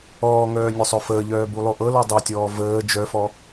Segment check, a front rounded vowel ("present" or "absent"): present